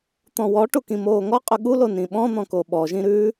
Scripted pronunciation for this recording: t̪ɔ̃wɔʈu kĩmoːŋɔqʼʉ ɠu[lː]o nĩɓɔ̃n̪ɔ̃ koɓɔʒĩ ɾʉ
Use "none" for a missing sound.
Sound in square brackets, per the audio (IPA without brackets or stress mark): l